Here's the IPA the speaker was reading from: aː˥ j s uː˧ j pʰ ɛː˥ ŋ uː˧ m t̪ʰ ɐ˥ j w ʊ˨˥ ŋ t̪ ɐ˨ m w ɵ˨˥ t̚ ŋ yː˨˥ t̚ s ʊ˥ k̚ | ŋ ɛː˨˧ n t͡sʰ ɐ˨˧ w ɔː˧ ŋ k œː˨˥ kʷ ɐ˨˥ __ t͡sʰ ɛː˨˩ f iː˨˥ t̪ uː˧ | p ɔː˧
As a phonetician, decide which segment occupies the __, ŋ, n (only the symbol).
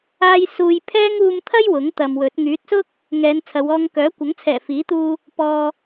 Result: ŋ